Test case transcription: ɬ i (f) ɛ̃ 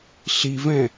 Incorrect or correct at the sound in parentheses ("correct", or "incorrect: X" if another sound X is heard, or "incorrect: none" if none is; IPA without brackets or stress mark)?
incorrect: v